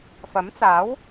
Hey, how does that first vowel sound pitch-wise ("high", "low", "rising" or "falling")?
rising